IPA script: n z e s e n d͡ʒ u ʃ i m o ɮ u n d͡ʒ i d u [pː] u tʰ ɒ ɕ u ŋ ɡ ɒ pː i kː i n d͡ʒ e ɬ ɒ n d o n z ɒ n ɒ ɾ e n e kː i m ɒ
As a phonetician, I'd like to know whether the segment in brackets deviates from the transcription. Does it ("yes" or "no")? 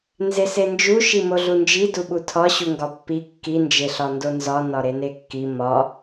yes